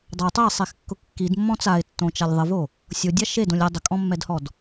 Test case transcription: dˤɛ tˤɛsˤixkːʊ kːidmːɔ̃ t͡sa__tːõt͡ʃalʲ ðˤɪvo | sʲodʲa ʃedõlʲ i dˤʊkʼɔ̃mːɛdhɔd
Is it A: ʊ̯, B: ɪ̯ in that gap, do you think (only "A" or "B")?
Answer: B